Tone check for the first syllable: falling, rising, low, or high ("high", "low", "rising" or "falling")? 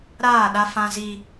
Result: falling